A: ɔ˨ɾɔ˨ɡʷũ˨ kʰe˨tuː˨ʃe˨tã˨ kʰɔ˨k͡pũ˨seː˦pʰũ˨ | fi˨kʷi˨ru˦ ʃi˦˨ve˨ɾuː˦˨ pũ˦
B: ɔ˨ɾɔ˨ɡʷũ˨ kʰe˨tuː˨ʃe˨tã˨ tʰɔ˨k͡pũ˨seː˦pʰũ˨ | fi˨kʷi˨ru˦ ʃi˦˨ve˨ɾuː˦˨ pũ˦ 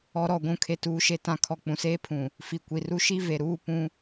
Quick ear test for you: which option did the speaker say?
A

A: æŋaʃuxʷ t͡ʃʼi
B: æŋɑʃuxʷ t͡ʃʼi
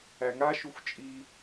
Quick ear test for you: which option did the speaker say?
A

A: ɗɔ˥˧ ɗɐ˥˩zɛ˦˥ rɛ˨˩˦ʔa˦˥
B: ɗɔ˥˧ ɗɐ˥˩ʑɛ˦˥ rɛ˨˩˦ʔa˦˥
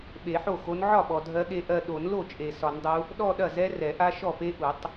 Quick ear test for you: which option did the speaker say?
A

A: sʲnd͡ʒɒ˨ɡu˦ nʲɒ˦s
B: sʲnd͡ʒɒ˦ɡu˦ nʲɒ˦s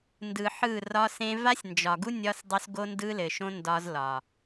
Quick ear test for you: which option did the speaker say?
A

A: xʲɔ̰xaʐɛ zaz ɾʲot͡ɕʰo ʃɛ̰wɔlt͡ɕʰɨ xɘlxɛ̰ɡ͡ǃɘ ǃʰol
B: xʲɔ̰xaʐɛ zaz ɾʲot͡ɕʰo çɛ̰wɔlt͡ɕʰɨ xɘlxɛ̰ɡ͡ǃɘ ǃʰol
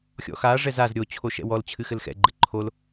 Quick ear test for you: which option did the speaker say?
A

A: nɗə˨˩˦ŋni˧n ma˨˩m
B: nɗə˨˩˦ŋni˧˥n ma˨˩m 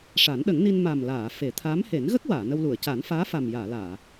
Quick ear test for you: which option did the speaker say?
A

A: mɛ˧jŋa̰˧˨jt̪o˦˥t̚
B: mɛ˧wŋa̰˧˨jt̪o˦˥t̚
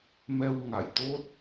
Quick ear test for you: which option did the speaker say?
B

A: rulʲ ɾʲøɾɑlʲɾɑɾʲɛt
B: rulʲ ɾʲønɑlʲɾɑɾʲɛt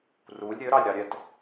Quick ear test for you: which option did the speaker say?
A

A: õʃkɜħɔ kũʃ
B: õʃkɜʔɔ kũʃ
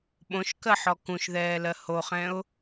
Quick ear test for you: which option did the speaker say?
A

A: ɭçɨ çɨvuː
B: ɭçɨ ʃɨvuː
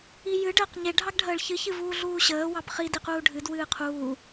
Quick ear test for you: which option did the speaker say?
A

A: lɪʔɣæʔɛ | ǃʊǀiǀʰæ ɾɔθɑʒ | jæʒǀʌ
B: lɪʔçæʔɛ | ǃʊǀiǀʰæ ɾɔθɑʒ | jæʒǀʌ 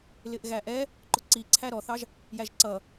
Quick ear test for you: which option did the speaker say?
A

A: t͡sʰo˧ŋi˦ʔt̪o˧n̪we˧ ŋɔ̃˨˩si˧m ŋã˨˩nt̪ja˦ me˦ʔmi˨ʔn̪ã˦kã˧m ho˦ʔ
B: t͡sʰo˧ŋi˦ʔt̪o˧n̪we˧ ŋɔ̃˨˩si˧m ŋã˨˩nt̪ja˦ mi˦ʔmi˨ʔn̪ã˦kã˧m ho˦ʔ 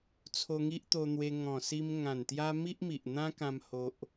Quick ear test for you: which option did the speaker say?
B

